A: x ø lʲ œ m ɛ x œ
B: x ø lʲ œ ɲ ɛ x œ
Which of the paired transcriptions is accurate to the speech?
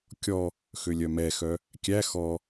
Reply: A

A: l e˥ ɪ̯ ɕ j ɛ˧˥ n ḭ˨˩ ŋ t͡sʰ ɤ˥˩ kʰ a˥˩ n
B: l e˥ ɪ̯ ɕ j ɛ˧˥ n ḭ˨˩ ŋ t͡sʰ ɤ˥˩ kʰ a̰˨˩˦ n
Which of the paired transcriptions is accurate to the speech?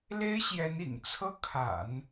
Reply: B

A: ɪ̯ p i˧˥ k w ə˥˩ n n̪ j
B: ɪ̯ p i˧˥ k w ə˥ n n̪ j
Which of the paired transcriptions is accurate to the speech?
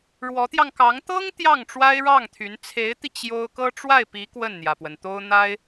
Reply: A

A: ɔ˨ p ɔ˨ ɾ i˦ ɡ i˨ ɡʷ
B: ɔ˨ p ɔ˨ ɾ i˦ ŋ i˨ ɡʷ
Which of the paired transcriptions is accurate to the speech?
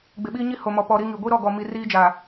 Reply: B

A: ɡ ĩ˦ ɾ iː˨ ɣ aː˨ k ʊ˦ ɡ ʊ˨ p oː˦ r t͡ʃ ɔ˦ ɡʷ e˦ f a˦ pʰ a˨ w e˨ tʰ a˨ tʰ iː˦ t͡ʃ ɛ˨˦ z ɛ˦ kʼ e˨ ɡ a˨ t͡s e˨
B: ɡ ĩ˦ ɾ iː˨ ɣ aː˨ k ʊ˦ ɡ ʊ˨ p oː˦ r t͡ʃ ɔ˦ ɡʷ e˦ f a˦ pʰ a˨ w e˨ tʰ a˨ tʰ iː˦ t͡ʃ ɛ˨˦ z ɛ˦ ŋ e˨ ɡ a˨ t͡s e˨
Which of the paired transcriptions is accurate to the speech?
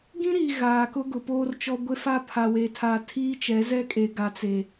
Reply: A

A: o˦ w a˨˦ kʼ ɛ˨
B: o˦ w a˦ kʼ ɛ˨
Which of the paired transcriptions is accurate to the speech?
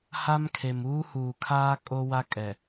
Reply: B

